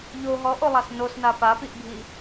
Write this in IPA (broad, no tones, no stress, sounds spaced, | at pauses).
ʎ o ɦ ɔ ʔ o lˠ a s n o s n a p a p i ʔ bʱ i